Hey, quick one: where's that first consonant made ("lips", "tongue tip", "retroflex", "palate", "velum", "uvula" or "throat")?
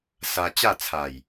tongue tip